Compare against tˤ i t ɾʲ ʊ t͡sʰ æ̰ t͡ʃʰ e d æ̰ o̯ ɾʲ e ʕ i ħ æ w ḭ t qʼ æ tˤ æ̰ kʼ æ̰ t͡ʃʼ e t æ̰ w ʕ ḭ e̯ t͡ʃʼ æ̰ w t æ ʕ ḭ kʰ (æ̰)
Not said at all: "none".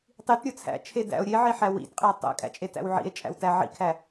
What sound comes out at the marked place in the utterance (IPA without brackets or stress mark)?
æ